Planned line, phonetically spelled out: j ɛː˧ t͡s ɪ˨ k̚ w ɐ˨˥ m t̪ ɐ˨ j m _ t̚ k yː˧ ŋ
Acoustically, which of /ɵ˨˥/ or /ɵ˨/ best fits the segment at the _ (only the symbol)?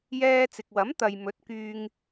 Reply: ɵ˨˥